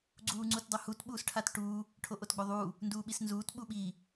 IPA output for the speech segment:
ɡ͡ǀuːŋ͡ǀutdˤohut ɓuːsʈʰatʈuː | ʈʰoʔotɡ͡boðˤuː | nduːɓisnzuːt ɓuɓiː

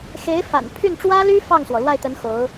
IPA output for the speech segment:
xe˧˥ɪ̯ fa̰˨˩n pʰy˥˩nʈ͡ʂwä˥ly˥ fɑ˥˩ŋswɔ˩ lwa˥˩ɪ̯t̪ə˧˥n xo˧˥ʊ̯

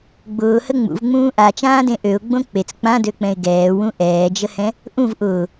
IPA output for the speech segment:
ɡ͡bʊːhə ŋ͡mṵvŋ͡mũː ʔat͡ʃãːdẽ ʔøʊ̯ɡ͡bõ k͡pet͡s k͡pãdøk͡pɛ̃ɪ̯ ɡɛːwũ ʔɛːd͡ʒəhɛ̃ | ʔũv ʔʊː

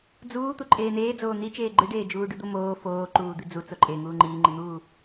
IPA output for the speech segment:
d͡zuː t̪uǃʼeːn̪eːd͡zoː n̪i t͡ʃeːɡ͡ǃɨɖeː d͡ʒuːɖʉd̪omoː foː ǃuːd̪ɨd͡zu t͡soǃʼe ŋuːŋ͡ǃiːŋ͡ǃin̪uː

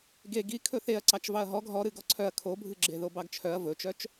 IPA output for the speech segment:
ɡe ɡi kʰɵθeɐ̯ ǀɑt͡ʃvɑɐ̯ɦɔɡ ɦɔɾɨ ɡɔǀʰœɐ̯ kʰobʱɨɡ͡ǁe ðobɑɡt͡ʃʰœɐ̯ vɵt͡ʃœt͡ʃ

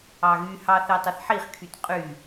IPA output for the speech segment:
ɑɣyhɑ θetˤʌθħiχkʰyt qʼy

